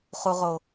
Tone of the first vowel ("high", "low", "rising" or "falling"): low